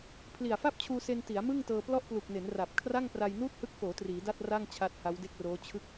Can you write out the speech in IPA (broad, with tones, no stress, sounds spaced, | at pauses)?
pʰ l i˨˩ a̯ f a˥˩ p̚ t͡ɕʰ uː˧ s e˧ n t i˩˦ a̯ m ɯ˥˩ ŋ t ɤː˧ p l ɔ˥˩ ʔ p l u˨˩ k̚ n e˩˦ n r a˨˩ p̚ kʰ r a˥˩ ŋ p r a˧ j n uː˥˩ t̚ h ɯ˦˥ k̚ f oː˩˦ t r iː˩˦ d a˥˩ t̚ r a˥˩ ŋ t͡ɕʰ a˦˥ t̚ h a˦˥ w d e˥˩ k̚ r oː˦˥ t͡ɕʰ ɯ˦˥ k̚